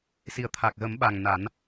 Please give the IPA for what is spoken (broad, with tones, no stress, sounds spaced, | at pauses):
s i˨˩ ə̯ t̪ʰ a˨˩ k̚ ɣ ə˨˩˦ m ɓ a˨˩ ŋ n a˨˩˦ n